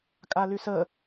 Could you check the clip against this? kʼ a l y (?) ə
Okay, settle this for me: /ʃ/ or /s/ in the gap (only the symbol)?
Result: s